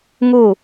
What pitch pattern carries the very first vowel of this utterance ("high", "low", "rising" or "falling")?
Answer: falling